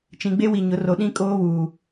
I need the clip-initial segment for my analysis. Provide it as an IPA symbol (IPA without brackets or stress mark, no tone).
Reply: t͡ʃ